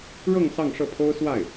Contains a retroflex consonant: yes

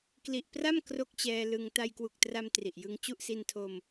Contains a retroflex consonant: no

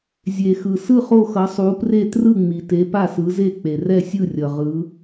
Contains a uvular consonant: yes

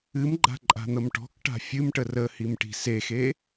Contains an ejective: yes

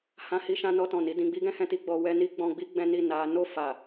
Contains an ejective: no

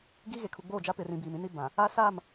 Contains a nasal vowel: yes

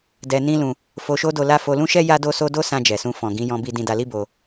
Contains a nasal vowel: yes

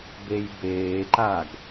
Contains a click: yes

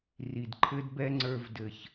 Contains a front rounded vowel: no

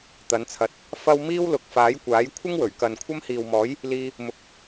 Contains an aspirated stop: yes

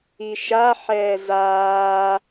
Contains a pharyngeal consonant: yes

